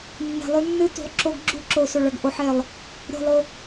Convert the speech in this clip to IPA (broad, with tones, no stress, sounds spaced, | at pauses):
nː e̤˨ lˠ ʉ˦ nː ɨ˦ t ṳ˨ lˠ ǁ o˦ ɡ ɡ͡ǁ u˦ ǁ o˨ s o˨ ɭ ɐ˨ ɡ ʔ o˨˦ ħ e˨ lˠ | ɾʲ o̤˦˨ lˠ o˦